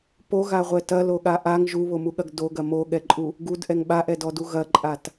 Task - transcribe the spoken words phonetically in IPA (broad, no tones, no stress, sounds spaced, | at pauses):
p o ɣ a ʁʷ ɛ t ɐ l o ɠ a ʔ a ŋ ʒ u β o m u ɠ ɐ ɡ d o ɡ ɐ m o ɠ ɛ ǃʼ u | ɡ u d ʔ ɛ ŋ ɓ a ʔ ɛ d ɔ d u ɣ ɐ ǃʼ a t